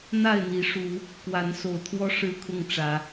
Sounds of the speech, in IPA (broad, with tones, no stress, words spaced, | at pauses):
n̪a˥˨ɪ̯n̪i˨˦ʂu˨˦ | kwa˨˦n so˨˩ʊ̯t̪ʰwɔ˦ ʂɻ̩˦kʰʊ˥˨ŋʈ͡ʂä˨˦